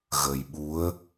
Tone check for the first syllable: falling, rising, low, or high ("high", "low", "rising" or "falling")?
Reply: low